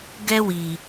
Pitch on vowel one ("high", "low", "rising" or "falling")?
high